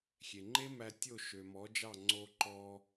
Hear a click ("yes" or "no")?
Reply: yes